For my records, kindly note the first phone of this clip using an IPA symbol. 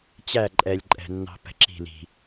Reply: t͡ɕ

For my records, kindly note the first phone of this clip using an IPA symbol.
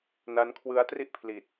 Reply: n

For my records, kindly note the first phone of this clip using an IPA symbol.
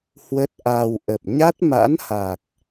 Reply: h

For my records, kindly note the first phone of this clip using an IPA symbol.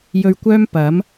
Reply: j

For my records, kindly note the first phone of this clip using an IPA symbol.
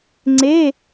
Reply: ŋ͡ǀ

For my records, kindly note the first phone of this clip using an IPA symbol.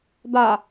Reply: d̪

